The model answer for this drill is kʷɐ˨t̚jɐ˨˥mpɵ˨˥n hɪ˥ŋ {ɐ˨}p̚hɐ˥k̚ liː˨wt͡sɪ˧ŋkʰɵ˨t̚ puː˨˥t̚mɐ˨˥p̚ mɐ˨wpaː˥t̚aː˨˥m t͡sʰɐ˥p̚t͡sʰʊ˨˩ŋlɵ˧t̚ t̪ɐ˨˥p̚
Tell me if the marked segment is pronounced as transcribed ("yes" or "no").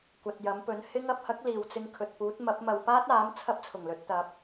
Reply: yes